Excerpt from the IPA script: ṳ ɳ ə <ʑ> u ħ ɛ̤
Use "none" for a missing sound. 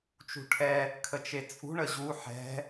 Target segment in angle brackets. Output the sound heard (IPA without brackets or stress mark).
ʑ